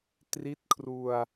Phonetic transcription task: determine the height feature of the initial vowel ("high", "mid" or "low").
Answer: high